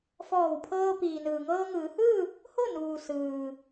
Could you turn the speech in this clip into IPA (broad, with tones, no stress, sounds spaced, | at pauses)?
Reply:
f ɔː˧˩ w pʰ ɤː˧ p iː˩ n ɯː˩ ŋ ɤː˧ ŋ ɯː˩˧ h ɯː˥˨ | h o˥˨ n uː˩ s ɯː˩